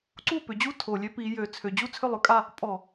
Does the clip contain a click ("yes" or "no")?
yes